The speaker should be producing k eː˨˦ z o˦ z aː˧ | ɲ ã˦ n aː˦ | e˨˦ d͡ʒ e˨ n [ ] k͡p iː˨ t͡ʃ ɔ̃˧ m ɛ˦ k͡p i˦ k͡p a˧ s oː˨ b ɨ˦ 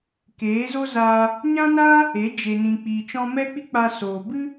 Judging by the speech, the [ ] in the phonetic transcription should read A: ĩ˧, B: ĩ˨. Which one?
B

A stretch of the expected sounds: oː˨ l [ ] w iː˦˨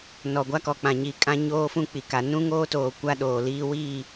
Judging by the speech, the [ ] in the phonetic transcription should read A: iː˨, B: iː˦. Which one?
B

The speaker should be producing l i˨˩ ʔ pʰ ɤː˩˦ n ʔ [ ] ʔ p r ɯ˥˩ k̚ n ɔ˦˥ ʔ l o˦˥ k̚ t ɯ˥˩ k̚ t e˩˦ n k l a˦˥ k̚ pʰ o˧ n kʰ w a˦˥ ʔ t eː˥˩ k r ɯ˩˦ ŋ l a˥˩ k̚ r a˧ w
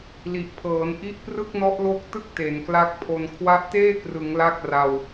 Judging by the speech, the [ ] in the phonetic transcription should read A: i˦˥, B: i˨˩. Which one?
A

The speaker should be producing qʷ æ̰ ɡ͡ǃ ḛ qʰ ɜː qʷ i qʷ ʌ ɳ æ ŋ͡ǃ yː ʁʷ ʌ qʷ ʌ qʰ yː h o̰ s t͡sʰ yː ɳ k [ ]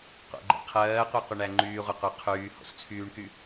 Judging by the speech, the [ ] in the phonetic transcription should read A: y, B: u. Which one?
A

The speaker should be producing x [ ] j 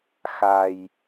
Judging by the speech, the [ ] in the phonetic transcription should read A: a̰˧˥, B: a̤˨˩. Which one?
B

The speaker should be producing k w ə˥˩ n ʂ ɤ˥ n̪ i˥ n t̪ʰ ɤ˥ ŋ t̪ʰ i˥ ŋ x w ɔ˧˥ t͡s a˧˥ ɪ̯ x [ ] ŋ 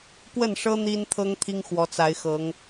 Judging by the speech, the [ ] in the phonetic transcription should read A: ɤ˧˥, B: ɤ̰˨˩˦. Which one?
A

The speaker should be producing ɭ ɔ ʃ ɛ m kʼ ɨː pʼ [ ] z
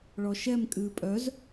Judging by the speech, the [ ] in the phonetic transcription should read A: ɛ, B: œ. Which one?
B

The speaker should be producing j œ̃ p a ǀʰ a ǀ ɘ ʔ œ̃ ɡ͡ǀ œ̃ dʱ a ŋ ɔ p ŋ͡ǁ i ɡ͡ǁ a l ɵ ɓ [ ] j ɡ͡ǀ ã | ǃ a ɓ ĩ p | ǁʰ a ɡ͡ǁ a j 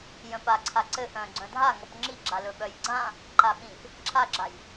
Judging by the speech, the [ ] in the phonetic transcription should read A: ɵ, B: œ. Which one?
B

